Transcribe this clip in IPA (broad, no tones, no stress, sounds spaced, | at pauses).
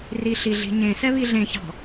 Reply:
r i ɬ i ɮ i̤ ɲ ẽ s ɛ β i ɮ ẽ ç ɑ̤